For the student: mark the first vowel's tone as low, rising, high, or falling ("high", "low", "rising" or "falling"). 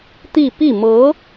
falling